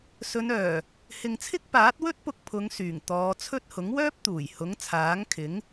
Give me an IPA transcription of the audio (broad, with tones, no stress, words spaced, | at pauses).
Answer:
sɵ˨˧nœː˨˩ | hɪ˨ŋt͡sʰɪ˥k̚ paː˨˥t̚wɵ˥t̚pʊ˧k̚ pʰʊ˨˧ŋsyː˨˩ŋ t̪ɔː˨˧t͡sʰɵ˥t̚ hʊ˨˥ŋwœː˥p̚ t̪uː˨˩jhʊ˨˥ŋ t͡sʰaː˨˥ŋkʰɪ˨˥ŋ